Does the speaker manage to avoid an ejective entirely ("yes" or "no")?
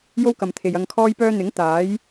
yes